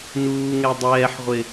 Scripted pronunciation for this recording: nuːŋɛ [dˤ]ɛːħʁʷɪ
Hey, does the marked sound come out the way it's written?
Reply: yes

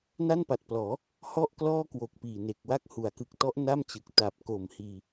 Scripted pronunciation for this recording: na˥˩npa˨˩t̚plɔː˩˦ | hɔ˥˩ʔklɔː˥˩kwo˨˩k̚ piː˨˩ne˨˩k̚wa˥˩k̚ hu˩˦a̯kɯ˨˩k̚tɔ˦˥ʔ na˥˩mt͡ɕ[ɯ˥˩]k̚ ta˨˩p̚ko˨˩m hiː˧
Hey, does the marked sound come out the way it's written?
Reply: no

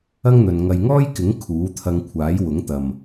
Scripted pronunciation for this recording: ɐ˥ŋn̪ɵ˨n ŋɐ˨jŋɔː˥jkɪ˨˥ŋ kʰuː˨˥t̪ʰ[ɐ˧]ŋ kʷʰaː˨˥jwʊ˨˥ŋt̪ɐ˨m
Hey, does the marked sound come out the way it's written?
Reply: yes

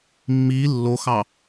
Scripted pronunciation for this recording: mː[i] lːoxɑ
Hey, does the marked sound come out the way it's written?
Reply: yes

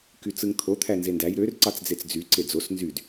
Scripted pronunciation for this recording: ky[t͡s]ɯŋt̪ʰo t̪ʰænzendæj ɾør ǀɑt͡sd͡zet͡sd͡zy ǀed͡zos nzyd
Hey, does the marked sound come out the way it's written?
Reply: yes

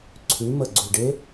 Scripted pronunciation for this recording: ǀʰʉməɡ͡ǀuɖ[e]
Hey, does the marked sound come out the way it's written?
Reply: yes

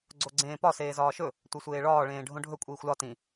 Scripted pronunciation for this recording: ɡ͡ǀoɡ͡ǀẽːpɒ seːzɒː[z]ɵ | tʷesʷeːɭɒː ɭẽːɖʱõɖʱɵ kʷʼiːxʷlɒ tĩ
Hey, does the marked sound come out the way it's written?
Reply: no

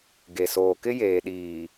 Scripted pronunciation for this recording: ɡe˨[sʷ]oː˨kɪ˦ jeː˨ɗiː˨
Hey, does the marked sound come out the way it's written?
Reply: no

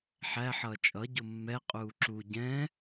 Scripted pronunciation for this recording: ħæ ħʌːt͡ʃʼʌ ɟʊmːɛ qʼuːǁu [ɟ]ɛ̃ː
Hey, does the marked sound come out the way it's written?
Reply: yes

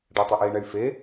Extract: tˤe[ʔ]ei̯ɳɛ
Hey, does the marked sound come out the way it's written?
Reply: yes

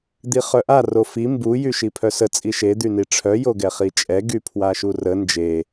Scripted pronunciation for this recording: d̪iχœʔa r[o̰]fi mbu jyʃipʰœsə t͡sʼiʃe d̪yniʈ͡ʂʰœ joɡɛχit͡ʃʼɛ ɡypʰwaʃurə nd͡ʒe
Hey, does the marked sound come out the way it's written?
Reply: no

